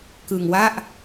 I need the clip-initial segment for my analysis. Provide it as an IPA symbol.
k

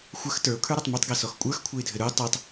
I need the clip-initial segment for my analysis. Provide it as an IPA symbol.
xʷ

